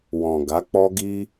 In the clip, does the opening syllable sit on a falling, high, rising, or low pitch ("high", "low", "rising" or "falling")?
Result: low